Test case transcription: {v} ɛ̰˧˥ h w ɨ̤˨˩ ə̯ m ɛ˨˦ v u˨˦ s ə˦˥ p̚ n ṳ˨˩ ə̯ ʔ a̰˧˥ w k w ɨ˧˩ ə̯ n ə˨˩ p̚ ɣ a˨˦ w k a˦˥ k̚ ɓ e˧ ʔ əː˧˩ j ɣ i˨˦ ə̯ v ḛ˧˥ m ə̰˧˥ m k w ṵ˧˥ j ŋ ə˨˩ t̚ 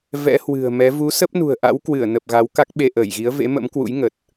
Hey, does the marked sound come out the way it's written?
yes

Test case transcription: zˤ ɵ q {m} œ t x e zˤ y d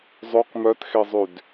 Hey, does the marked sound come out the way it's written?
yes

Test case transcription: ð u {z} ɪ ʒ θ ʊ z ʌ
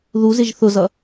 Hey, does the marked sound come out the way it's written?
yes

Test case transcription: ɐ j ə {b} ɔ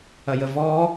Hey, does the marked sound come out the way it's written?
no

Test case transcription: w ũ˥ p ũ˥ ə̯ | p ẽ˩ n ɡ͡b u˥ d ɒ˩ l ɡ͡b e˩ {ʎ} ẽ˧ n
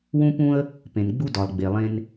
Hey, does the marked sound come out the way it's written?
no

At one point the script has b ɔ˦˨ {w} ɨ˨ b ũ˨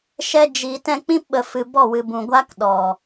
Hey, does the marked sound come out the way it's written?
yes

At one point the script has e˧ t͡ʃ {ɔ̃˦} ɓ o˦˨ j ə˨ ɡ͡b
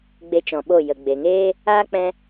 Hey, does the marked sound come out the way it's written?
no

